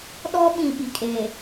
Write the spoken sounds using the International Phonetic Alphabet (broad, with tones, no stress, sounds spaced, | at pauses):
ɗ ɔ˦ ɓ ĩ˨ ɓ i˨ kʼ eː˨